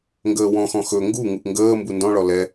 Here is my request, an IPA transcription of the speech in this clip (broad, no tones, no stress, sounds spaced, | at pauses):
ŋ ɡ əː w ɔ̃ x ɔ̃ x ɵ ŋ ɡ u ŋ u ʔ ŋ ɡ əː m b u n d ɔ̃ ɭ ɔ l ɛ